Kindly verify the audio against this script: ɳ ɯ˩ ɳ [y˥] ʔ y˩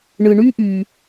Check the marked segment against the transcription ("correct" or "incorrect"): correct